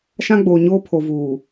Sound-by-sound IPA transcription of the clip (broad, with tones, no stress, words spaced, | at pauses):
ʃã˦ɡ͡boː˨ɲoː˦ pʰo˨ vuː˨